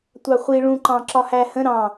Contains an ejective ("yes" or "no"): no